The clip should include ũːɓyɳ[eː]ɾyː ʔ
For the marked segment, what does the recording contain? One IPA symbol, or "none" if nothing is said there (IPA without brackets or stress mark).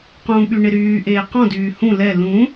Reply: e